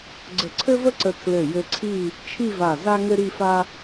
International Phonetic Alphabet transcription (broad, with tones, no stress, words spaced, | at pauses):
ɡ͡ǀə˧˩ǀʰɘ˥və˥ǀə˧ tʰlɘ˧˩jɘ˧ ǀʰi˥˧ | t͡ʃʰi˥˧va˧˩ za˥ŋɘ˥ɾi˥˧fa˥